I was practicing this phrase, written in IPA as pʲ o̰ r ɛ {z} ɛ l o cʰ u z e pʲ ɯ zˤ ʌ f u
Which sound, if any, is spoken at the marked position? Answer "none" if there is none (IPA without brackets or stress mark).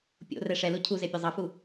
ʂ